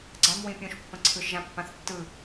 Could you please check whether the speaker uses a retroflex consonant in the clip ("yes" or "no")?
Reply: no